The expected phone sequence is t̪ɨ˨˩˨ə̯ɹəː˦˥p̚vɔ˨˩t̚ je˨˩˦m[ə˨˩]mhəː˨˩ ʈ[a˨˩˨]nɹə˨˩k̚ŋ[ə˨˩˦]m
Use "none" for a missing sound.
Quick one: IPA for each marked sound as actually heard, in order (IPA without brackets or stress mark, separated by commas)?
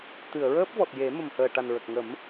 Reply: ə˨˩, a˨˩, ə˨˩˦